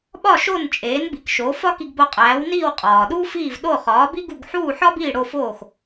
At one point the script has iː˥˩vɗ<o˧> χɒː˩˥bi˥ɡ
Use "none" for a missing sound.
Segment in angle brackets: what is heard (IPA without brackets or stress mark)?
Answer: o˥˩